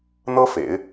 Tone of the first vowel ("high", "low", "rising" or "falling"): high